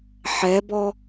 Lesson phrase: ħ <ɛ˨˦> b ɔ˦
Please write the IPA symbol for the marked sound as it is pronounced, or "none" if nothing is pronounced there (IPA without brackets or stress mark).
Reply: ɛ˨˦